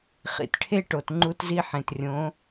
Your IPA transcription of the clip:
χ ḭ˩ t ʈʰ e˥ ʈ o˩ t ŋ͡ǃ u˧ t z i˧ ħ ẽ˩ t rʲ õ˩˧

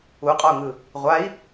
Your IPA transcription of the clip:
u qʼ ɔ u̯ ŋ ɯ | ʁʷ a i̯

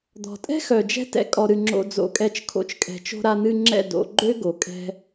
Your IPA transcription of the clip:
d̪ ɔ̤˨ tʼ ɛ̤˦ x œ˨ d͡ʒ ɛ̤˦ t ɛ̰˧ kʼ ɔ˧ ɾ ɨ˧ ŋ͡ǁ o̰˧ d͡z o̰˧ kʼ ɛ˧ t͡ʃ kʰ o̰˦˨ t͡ʃ kʼ ɛ̤˧ t͡ʃ o̤˧ ɾ a˧ n̪ ɨ˧ ŋ͡ǁ ɛ̰˦˨ d o̰˧ ɡ͡ǃ ø˦ ɡ o˨ kʼ ɛ̤˧

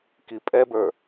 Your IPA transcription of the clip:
k i pʼ ɛ b ə˞

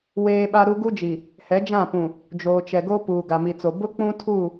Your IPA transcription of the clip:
w eː˦ ɓ a˦ ɾ u˦ ɡ u˦ d͡ʒ i˨ | h ɛ˨˦ d͡ʒ ã˦˨ p ũ˨ | d͡ʒ oː˨ t͡ʃ ɛ˨ ɡ o˦ p uː˨ ɡ a˨ m i˨ t͡s o˨ b ʊ˦ k͡p ũ˦ tʰ u˦˨

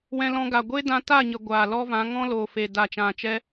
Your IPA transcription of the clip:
w ɛ̃˧ l ɔ̃˧ ɡ a˨ ɡʷ e˦ d ã˧ t a˦˨ ɲ ə˨ ɡʷ aː˨ l ɔ˦ v ã˨˦ ŋ ɔ̃˦ l oː˨ f e˨ d a˨ t͡ʃ ã˨ t͡ʃ ɛ˦

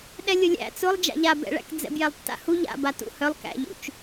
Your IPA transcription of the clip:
ɗ ɛ lʲ ʊ lʲ æ̰ t͡s ʊ lˠ d͡ʒ a̰ ʎ a b ɛ̰ ɭ æ̰ k d͡z ɛ̰ b j ɛ lˠ tː a̰ h u ʎ a̰ b a t ṵ h œ lˠ k æ̰ ʎ ṵ t͡ʃ

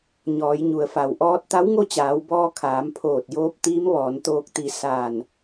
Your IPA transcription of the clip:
ɲ ɔː˩˧ j ɲ u˩ ə̯ f a˩ w ʔ ɔː˧˥ t̚ t̪ a˧˥ w ŋ o˥˨ t͡ɕ aː˩˧ w b ɔː˧ kʰ aː˩˧ m pʰ oː˧˩ t̚ j oː˧˥ p̚ t̪ iː˧˥ m ʋ ɔː˩˧ n t̪ oː˧ k̚ t̪ i˧˩ s aː˧˩ n

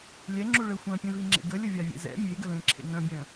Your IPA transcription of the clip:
lʲ ɛ ŋ͡ǁ u ɭ ə xʷ œ̃ pʲ ẽ v i ŋ͡ǁ ḛ ɡ ə lʲ ə vʲ a vʲ ḛ z ɛ̰ mʲ e ɡ ə l ẽ ǁʰ ḛ ŋ œ̃ bʲ œ̃

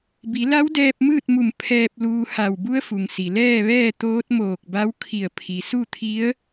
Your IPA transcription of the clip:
b i˩˧ l a˧˥ w d ɛː˧ p̚ m ɯː˥˨ t̚ m u˧˩ m pʰ ɛː˧ p̚ l uː˧ h a˧˩ w b u˧˥ ə̯ f u˩ ŋ s i˩ l ɛː˥˨ ʋ ɛː˥˨ t̪ oː˧˥ t̚ m oː˧˩ k̚ b a˧˥ w kʰ i˧˩ ə̯ pʰ i˩ s u˥˨ t̪ʰ i˧˥ ə̯

